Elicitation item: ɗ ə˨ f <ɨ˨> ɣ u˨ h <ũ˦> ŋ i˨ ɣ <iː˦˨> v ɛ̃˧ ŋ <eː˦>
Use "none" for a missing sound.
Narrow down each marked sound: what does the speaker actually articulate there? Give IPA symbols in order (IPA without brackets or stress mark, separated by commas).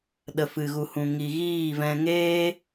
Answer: ɨ˨, ũ˨, iː˦˨, eː˦